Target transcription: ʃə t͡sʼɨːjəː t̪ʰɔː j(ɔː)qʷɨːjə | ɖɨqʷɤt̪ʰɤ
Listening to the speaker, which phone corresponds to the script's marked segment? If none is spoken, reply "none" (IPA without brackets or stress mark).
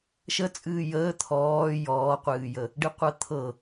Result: ɔː